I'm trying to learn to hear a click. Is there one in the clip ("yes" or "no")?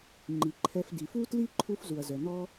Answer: yes